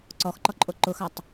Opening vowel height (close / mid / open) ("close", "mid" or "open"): mid